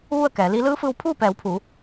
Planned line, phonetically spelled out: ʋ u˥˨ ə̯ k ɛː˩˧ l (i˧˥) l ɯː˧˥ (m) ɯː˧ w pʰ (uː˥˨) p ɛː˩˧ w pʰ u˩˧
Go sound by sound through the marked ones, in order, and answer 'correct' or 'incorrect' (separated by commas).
correct, incorrect, correct